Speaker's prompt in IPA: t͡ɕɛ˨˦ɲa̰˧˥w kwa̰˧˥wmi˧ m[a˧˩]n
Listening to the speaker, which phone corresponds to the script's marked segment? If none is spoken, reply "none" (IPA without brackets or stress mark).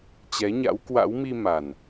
a˨˩